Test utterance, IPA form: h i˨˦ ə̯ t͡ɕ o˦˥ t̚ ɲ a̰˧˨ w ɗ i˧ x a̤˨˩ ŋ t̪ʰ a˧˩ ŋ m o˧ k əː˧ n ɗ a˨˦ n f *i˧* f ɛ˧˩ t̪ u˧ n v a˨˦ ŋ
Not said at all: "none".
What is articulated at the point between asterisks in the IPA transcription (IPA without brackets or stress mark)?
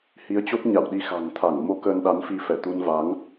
i˧